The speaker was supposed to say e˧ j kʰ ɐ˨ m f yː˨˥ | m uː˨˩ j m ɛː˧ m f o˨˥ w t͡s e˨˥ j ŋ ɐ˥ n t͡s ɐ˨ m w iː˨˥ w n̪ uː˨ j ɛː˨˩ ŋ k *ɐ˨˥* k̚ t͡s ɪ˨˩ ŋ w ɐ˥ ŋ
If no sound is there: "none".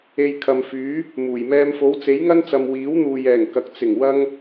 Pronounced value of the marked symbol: ɐ˨˥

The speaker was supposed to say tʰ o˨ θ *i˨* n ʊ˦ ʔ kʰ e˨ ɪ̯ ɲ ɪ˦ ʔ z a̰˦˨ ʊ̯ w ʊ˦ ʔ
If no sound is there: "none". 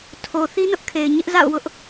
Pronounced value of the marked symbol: i˦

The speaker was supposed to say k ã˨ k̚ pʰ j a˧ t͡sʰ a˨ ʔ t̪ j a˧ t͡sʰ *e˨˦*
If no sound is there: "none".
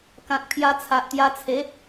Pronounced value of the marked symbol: e˨˦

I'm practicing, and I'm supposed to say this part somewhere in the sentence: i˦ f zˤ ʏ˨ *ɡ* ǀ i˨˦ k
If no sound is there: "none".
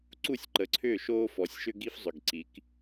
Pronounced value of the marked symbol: ɡ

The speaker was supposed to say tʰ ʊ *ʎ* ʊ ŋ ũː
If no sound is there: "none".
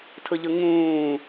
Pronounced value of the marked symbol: ʎ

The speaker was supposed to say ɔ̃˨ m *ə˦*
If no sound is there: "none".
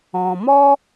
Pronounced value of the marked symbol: ɔ˦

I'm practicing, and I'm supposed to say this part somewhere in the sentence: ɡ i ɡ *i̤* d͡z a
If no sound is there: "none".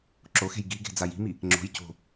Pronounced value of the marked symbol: e̤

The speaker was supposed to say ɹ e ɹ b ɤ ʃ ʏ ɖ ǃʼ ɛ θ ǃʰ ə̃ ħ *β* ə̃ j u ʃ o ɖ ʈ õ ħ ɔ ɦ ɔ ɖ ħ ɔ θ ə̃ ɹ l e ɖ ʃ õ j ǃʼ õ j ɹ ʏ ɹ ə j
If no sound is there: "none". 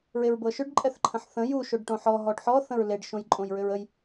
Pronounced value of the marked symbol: θ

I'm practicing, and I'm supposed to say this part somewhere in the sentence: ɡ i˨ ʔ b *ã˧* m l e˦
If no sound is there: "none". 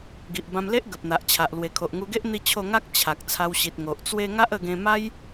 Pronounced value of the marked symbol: ã˧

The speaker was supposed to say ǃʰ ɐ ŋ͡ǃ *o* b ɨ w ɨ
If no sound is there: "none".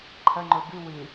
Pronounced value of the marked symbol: o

